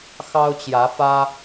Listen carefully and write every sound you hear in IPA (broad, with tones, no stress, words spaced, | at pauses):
xɑ˦ʊ̯t͡ɕjä˨˦fä˦